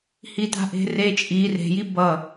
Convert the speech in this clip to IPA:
hita̤ʔe̤re t͡ʃʼi re̤ji bʌ

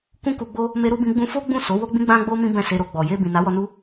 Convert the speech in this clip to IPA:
kũ˦ku˧ɡ͡bo˦ | me˦ɾu˦bĩ˦ ɡ͡bũ˧fo˦ ɡ͡bũ˦˨so˨˦ wo˦ɡ͡bĩ˦ɡ͡bã˦ɡ͡bo˦ mĩ˦bɛ̃˦˨se˧ɾo˧ ɡ͡bɔ˨je˧ bĩ˨na˨˦wɔ˧ nu˦

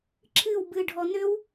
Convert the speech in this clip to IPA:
ǁʰɨw bɨɖʱɔ nʏw

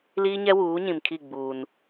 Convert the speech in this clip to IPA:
liː˦ɲɛ˦wuː˨˦ ɲĩ˨mkʰi˦˨ɡ͡buː˨n

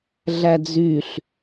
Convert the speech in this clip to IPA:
ɮæd͡zyɬ

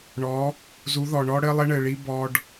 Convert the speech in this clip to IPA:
ɳɔ˨˦ | zu˨˦ðɔ˨ɳɔ˦ ɽɘ˦lˠɘ˦ɳɘ˨ɭi˦ bɔ˦ɖ

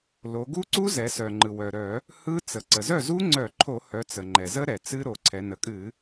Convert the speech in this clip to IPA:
lo˩˧ɡu˦˥ǀu˦˥zɛ˩˧ sœ˩ŋ͡ǃɯ˩ wœ˩ɾœ˧˩˧ | hɯ˦˥ t͡sə˩ ǀə˩zœ˥˩zu˦˥ŋ͡ǀœ˧˩˧ ǃʰo˧˩˧hœ˩˧ t͡sə˩ŋ͡ǃɛ˩zə˦˥ ɾɛ˩ t͡sɨ˦˥ɾo˩˧ ǀʰɛ˩˧ nə˩˧kʼɨ˧˩˧

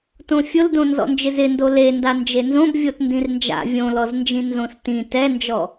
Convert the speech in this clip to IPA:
tõfʲʊldõ nzɔ̰nd͡ʒɪzɪndo lenda nd͡ʒenzõb vʲotndĩrnd͡ʒa̰ vʲõlɔznd͡ʒĩ nzõstĩ tɛnd͡ʒɔ

